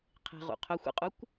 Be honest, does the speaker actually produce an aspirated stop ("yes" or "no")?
yes